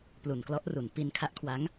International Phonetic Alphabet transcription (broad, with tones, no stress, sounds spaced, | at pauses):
p l u˨˩ n k l ɔ˦˥ ʔ r u˩˦ n p i˧ n kʰ a˦˥ ʔ kʰ w a˦˥ ŋ